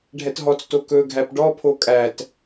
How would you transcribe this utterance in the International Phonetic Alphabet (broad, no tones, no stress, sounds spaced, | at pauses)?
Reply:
ɖʱ ɛ t ɦ ɔ t͡s t o k ɵ ɡʱ æ p ɖ ɔ pʰ o kʼ æ t